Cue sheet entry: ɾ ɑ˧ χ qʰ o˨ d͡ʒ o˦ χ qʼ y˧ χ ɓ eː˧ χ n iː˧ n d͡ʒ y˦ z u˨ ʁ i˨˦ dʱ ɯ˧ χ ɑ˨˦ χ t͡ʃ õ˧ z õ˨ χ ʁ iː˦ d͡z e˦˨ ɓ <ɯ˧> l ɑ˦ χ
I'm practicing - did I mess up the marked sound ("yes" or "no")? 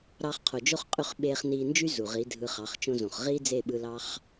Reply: no